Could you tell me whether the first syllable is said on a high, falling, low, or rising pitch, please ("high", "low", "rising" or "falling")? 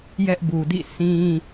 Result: high